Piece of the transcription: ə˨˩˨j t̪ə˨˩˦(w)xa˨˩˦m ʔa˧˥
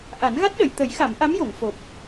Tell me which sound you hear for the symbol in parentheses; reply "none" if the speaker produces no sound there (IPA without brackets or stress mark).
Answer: j